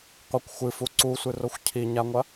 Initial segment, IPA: qʷ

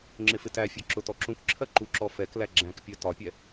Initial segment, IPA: ŋ͡ǁ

